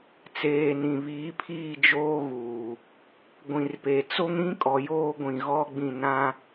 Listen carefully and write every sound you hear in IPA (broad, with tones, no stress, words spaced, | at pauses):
t͡seː˨ nĩ˨βiː˨˦ pʰiː˦˨d͡ʒoː˦ɣuː˨ | ɡʷĩ˨rpe˨ t͡so˦ŋɾĩ˦kʼɔ˨ joː˦ɡʷĩ˨ɣɔ˦ɡ͡bĩ˦˨ nã˦